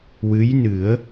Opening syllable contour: rising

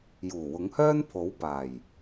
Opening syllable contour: low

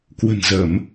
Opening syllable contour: low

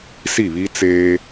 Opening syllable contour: falling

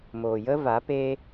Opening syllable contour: low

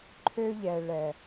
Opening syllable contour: high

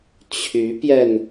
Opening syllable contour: rising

